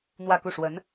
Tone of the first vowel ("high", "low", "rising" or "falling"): falling